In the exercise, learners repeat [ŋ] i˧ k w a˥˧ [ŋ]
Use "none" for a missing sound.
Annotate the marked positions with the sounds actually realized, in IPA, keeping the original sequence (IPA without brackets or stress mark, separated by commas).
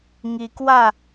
ŋ, none